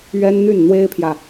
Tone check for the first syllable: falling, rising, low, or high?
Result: high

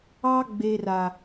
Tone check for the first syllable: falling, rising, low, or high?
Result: high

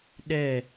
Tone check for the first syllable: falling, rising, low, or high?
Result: falling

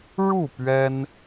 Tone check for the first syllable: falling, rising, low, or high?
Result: falling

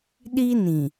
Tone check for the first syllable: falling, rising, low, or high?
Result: high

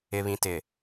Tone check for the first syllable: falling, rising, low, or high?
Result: low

